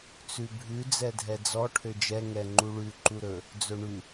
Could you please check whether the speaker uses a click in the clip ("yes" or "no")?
yes